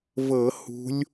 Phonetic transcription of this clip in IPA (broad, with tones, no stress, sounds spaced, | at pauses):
v ɤ˧˩˧ h ṳ˨˦ lʲ